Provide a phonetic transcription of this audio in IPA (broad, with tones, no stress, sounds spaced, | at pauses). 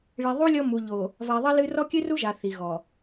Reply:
ɭ i˨ ðˤ u˦ lʲ ɔ˦ m u˨ ʎ o˨ | v a˨ ðˤ ɐ˦ l ɨ˦ r ɔ˦ kʲ ɨ˦ r u˦ ʒ a˨ θ i˨ ɣ ɔ˨